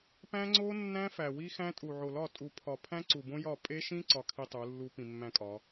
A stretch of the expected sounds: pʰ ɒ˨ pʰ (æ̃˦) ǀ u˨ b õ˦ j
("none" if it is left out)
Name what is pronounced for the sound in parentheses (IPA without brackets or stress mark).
æ̃˦